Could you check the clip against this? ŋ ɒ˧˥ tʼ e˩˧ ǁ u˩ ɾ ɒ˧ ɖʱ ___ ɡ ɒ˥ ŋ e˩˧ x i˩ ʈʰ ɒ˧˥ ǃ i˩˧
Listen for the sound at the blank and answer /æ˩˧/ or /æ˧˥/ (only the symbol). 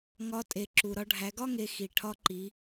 æ˩˧